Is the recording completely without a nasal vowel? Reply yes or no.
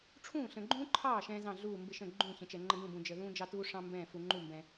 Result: no